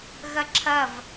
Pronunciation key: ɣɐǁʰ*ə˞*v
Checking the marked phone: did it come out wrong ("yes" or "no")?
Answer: yes